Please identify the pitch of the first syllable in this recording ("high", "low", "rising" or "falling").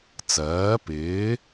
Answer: rising